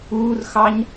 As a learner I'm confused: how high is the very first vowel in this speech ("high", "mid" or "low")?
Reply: high